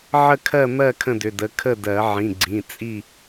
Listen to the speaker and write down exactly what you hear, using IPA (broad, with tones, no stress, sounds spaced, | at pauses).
ʕ ə˥˨ kʰ ɜ˥˨ m ɜ˥˨ kʰ ə̃˥˨ d ʏ˩˧˩ d ə˩˧˩ kʰ ə˥˨ d ɜ˨˩˦ ʕ ĩ˩˧˩ ɡ͡ǀ ĩ˩˧˩ t͡sʼ i˥˨